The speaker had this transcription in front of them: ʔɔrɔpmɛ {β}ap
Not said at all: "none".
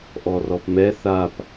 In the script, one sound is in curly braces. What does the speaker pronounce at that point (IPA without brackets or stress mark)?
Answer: θ